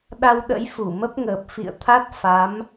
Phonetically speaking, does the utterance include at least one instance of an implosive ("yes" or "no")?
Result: yes